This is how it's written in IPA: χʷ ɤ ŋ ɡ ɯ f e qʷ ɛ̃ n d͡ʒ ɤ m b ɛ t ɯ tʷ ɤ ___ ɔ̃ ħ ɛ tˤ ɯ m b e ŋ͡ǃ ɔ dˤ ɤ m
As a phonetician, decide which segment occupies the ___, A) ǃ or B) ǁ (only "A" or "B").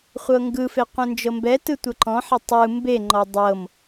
A